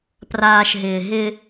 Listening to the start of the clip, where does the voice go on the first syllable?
low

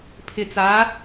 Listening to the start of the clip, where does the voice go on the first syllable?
low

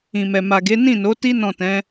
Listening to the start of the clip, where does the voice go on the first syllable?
low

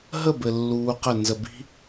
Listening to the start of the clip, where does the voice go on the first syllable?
falling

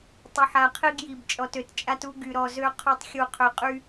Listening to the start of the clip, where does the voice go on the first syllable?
low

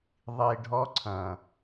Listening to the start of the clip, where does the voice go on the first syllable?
low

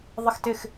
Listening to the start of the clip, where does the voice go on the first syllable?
falling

